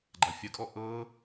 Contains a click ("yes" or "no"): yes